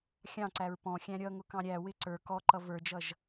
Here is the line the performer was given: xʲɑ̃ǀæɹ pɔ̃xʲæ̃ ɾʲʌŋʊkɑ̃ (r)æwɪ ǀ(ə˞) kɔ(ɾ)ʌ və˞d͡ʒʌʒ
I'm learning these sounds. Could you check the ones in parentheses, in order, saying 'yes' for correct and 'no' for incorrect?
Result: no, yes, no

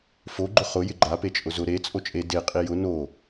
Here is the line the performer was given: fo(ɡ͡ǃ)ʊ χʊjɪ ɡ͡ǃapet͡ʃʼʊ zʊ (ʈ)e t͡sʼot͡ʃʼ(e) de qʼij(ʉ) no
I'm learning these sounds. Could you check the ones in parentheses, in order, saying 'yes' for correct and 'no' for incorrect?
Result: yes, no, yes, no

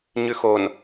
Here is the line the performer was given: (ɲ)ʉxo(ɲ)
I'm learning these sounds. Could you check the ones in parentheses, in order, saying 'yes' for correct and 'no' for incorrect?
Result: yes, no

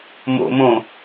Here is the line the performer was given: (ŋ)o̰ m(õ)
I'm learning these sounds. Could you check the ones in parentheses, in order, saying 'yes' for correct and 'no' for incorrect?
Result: no, yes

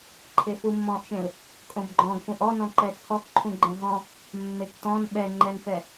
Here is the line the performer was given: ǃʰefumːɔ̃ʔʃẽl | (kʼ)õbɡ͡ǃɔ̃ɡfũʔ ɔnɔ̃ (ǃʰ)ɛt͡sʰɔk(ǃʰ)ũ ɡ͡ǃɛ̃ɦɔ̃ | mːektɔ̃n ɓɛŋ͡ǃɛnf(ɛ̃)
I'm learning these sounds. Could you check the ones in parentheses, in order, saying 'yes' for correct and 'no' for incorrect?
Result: yes, no, yes, no

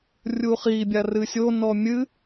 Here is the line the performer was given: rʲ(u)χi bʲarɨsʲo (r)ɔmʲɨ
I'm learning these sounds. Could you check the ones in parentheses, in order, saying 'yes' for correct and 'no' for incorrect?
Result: yes, no

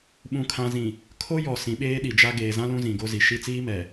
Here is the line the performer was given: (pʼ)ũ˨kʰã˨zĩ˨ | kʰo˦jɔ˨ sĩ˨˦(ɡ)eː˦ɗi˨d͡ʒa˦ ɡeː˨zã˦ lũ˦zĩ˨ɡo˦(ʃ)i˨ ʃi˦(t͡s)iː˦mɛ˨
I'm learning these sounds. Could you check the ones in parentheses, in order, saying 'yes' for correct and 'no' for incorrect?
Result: no, no, no, yes

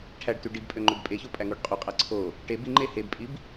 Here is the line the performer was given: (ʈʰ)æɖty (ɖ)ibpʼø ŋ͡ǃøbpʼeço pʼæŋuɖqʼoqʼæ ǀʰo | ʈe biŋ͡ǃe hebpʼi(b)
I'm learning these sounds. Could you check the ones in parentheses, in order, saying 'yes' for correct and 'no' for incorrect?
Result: yes, yes, yes

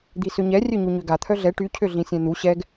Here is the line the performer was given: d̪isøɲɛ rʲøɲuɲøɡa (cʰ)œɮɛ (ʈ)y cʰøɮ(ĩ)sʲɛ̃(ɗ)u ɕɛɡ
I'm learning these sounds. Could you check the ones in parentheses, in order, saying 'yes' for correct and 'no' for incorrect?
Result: no, yes, yes, no

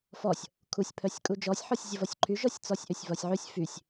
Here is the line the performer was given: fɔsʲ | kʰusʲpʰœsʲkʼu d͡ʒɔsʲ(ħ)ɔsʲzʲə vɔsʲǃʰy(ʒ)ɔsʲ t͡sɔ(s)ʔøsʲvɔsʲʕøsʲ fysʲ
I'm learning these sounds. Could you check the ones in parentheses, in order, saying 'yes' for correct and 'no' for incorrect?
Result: yes, yes, no

